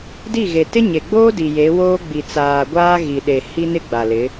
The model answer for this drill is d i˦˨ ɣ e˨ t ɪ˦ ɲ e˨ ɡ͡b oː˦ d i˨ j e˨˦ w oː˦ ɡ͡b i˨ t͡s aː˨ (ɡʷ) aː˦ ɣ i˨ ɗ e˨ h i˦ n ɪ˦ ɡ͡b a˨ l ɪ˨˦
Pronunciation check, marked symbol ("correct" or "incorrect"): correct